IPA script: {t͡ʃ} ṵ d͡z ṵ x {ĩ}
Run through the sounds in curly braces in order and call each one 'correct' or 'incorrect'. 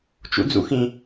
correct, correct

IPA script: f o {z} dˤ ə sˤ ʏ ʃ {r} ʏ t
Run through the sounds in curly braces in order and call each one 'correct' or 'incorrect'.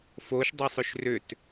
incorrect, correct

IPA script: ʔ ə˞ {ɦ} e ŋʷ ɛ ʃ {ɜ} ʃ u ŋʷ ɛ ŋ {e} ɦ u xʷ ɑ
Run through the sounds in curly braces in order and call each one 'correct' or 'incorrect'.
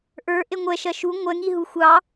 incorrect, correct, incorrect

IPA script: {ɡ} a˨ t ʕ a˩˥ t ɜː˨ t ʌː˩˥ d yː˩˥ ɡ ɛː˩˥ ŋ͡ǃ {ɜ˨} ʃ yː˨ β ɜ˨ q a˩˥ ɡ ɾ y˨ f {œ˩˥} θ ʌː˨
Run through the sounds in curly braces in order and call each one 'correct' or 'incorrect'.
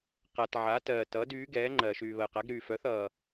incorrect, correct, correct

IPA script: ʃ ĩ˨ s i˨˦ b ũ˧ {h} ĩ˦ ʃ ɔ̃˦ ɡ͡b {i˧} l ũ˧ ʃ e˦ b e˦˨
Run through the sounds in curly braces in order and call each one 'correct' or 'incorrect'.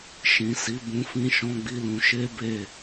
incorrect, incorrect

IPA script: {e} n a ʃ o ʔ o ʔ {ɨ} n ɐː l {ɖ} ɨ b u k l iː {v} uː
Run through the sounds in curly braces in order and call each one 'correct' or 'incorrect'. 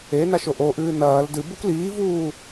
correct, incorrect, incorrect, correct

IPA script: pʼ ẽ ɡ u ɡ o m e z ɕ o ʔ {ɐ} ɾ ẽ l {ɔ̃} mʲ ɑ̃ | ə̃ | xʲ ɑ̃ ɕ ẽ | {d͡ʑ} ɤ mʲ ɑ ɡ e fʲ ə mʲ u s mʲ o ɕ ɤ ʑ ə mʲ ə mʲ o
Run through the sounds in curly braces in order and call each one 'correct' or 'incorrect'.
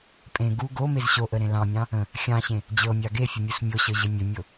incorrect, incorrect, correct

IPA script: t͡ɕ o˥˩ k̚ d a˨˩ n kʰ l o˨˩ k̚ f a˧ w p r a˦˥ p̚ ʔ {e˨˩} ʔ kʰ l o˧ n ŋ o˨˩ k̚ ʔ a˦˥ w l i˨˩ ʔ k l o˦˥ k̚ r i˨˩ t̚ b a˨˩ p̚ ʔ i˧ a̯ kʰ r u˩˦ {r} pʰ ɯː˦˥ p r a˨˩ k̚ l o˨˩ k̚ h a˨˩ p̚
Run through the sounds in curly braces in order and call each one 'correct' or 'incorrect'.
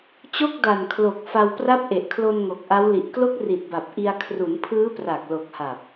correct, incorrect

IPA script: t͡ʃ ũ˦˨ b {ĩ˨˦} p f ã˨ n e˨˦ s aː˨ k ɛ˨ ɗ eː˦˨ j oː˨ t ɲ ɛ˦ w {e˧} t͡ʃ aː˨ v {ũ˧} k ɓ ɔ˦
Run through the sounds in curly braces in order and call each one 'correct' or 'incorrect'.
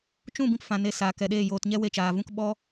incorrect, correct, correct

